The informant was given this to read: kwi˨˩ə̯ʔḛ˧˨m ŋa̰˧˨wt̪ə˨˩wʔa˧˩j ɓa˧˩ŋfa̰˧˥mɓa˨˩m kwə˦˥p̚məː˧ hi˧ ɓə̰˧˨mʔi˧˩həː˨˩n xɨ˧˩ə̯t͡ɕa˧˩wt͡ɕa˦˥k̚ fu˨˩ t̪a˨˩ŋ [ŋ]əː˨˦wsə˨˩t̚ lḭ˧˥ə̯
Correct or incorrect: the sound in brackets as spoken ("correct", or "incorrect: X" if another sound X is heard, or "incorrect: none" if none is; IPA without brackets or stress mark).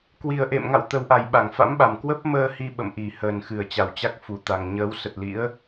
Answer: incorrect: ɲ